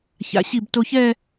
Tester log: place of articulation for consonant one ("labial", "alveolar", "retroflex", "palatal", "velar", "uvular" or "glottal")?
palatal